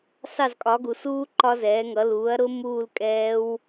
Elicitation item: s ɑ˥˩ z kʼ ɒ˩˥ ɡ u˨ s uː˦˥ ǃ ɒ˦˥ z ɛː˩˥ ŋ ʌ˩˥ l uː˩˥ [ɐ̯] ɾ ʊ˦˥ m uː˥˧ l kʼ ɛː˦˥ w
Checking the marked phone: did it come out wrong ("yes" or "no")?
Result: no